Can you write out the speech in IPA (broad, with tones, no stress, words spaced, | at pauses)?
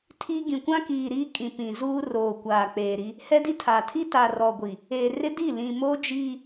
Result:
tʰi˦ ɡĩ˨kʷã˦kiː˨ ɾi˦kʼĩ˨pĩ˨zuː˦ roː˨kʷaː˨ k͡peː˨ɾi˦ | hɛ˦di˦tʰa˨ tʰi˦ta˨ rɔ˨ɡʷi˨ | eː˨rɪ˦di˦˨ lĩ˨moː˦d͡ʒiː˦